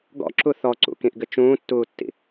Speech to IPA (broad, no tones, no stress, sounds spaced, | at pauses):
ɡ ɔ̰ ǁ u θ ɔ ǀ ṵ k ĩ ʔ ɡ ɘ t͡ʃ ũː tː uː tː ḭ